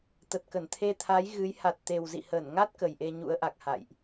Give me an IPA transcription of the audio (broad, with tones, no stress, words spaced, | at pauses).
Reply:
t̪ə˨˩t̚kə˧˩nt̪ʰe˧t̪ʰa˨˦j ɣɨ˨˦j ha˨˩t̚t̪e˨˩wzḭ˧˨ həː˧˩nŋa˦˥t̚ kə˨˩jʔe˧ɲṵ˧˥ə̯ʔa˨˩k̚ ha̰˧˨jʔ